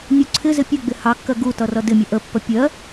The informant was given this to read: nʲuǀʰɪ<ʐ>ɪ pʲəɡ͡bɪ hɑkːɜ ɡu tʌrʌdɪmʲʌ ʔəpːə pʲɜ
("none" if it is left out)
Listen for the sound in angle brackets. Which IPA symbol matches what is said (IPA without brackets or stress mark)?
z